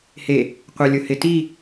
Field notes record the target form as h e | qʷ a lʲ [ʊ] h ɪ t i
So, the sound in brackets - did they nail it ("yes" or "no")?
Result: yes